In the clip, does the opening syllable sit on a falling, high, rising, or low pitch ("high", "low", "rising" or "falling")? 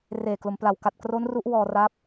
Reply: low